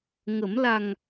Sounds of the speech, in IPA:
ŋ ə˨˩˦ m l a˨˩ ŋ

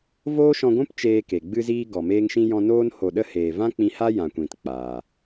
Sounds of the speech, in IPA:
v oː˦ ʃ ɔ̃˧ ɡʷ ũ˦ p t͡ʃ eː˧ k e˨ ɡ͡b ɨ˧ z iː˧ ɡ ɔ˨ m eː˦ ŋ ʃ ĩ˦ j ɔ̃˧ n oː˧ n h o˨ ɗ ə˧ h eː˨ v ã˦ k͡p ĩ˧ h a˦ j ã˨ kʷ ĩ˨ t k͡p aː˨

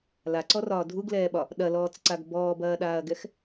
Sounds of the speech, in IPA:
l a ǀ ɔ r ɒː dʱ u ɡ l ɛː ɓ ɒ | ɗ ɐ l ɔː t͡s ǀ a ɡ b ɔː b ɐː ɗ aː ɐ̯ ɡ ɛ x

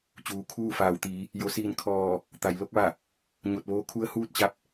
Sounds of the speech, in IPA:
t͡ɕ uː˩ kʰ uː˥˨ f aː˩˧ w t̪ iː˩˧ | j o˩˧ s iː˧˩ n kʰ ɔː˧˩ | t̪ a˩˧ j l o˧˥ k̚ ʋ a˧˩ | ɲ o˧˩ t̚ ʋ oː˧˥ kʰ u˧˥ ə̯ h uː˥˨ t̚ t͡ɕ a˧˥ p̚

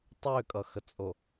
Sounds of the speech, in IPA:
tˤ ø kʼ ʌ x ə t͡sʼ o

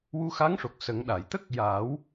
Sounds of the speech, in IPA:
w u˧ x a˧˥ ŋ ʂ o˨˩ k̚ s ə˨˩˦ ŋ ɗ a˨˩˨ j t̪ ə˦˥ k̚ j aː˨˩˦ w

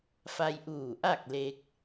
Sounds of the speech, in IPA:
f a˧ j ʔ uː˧˩ ʔ a˥˨ k̚ l e˧ k̚

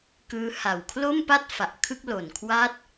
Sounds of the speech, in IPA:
k ɯː˦˥ h a˨˩ w kʰ l o˥˩ m p a˥˩ t̚ f a˨˩ ʔ kʰ ɯ˥˩ k̚ l o˨˩ n kʰ w aː˥˩ t̚

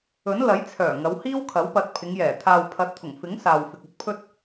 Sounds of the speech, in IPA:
ɵ˨˥ n l ɐ˨˥ j t͡sʰ œː˨˩ ŋ ɐ˨˧ w h iː˥ w kʰ ɐ˨˥ w p ɐ˨˥ t̚ pʰ ɪ˨˧ ŋ j ɛː˨˩ t̪ʰ aː˨ w pʰ ɐ˨˥ t̚ t̪ʰ ʊ˨˩ ŋ f ɪ˨˥ ŋ s aː˨ w f ɪ˨ k̚ ɵ˥ t̚ pʰ ɵ˥ t̚

